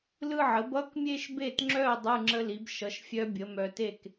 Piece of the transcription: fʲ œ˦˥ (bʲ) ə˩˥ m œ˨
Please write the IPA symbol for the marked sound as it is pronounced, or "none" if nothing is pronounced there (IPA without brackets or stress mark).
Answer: bʲ